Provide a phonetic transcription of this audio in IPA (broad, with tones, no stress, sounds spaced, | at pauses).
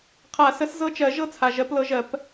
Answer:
qʰ a˨˩˦ s ə˨˦ s z ɤ˦ t͡ʃ ɜ˨˩˦ ʒ ɤ˦ t͡sʰ a˩ ʒ ɜ˨˩˦ p l ɤ˨˦ ʒ ɜ˨˩˦ p